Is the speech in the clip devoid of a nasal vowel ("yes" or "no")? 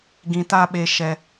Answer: no